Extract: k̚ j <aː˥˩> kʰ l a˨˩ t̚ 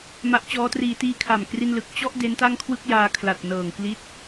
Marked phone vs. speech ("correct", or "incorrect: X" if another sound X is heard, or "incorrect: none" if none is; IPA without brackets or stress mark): incorrect: aː˧